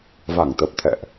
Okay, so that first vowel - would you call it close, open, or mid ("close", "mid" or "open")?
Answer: open